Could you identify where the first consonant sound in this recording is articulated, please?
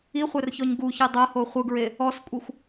uvular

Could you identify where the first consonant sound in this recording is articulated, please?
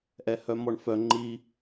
glottal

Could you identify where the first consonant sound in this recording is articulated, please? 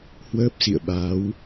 glottal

